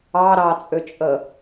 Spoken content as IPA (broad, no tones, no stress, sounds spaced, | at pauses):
ɑ ɾ ɑ t͡sʼ ʏ t͡ʃʼ ə